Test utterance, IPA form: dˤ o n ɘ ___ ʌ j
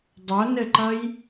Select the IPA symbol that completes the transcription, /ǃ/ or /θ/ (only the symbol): ǃ